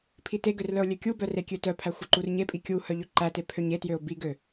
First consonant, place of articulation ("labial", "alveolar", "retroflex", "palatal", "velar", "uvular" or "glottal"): labial